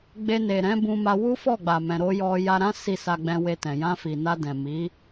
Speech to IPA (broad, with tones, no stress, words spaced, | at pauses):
ɡ͡be˧ne˨ɾɛ̃˨˦ bũ˧ma˧ wu˦fɔ˦˨ɡ͡ba˨mɛ̃˨ ɾo˧ jɔ˧ ja˧ɾã˦ si˦˨sa˧ ɡ͡bɛ̃˧we˧tɛ̃˨ jã˧fi˨na˧ dɛ̃˨ mi˨˦